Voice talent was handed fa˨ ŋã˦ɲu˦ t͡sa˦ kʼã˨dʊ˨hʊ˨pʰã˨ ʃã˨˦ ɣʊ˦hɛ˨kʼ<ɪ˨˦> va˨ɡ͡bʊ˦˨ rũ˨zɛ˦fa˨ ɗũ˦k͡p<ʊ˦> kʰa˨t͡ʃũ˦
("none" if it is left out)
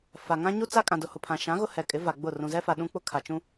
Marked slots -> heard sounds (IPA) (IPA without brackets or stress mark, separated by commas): ɪ˨˦, ʊ˦